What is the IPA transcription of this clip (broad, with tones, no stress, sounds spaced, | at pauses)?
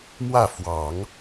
m w ä˥˩ f w ɑ˨˩˦ ŋ